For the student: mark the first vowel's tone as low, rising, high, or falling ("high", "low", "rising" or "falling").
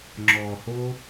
low